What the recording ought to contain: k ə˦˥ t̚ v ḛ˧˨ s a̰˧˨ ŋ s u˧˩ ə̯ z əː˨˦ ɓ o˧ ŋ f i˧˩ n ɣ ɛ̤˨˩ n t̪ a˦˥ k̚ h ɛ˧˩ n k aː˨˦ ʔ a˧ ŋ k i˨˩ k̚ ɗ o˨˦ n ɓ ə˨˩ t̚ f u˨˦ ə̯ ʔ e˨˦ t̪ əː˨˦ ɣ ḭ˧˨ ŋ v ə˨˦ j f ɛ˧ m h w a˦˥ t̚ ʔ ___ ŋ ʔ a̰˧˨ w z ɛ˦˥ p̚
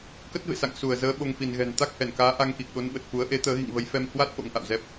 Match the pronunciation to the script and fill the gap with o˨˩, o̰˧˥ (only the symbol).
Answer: o̰˧˥